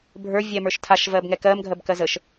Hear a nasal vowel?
no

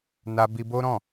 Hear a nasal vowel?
yes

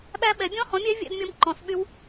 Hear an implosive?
yes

